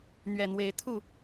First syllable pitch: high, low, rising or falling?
low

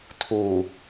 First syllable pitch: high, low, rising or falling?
low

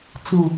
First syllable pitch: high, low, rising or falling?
low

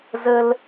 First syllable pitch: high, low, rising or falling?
high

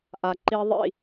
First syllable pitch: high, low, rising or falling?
low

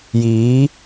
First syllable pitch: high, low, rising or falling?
rising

